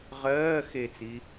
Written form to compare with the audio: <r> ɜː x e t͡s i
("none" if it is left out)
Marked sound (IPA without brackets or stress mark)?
ʁ